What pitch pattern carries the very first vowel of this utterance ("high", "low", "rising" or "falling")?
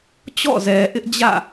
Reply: falling